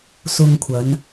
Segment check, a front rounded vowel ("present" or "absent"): absent